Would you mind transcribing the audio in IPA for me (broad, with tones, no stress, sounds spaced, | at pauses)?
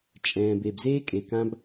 t͡ʃʼ ɛ̃ː˨ b e˨ b z eː˦ kʼ e˨ k ã˦ b